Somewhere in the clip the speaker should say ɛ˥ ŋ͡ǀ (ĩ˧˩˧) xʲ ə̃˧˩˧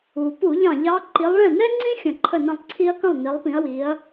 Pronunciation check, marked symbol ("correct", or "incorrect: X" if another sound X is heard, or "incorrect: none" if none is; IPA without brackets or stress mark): incorrect: ĩ˥